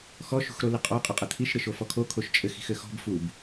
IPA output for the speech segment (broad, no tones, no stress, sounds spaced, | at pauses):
x ɔ ʃ ṳ x ɾ o l ɪ qʼ ɔ qʼ ɪ qʼ ɘ t̪ʰ i ʃ ɾ ɪ ʃ o f ɔ kʰ o kʰ o ʃ t͡ʃʼ ɘ x i̤ x ɘ x ɔ̤ b f u b